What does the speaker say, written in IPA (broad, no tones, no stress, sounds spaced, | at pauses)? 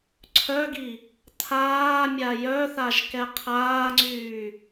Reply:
ǀʰ œ ɡ i | tʰ aː mʲ a j œ θ a ʒ k ɛ qʰ aː ŋ͡ǀ yː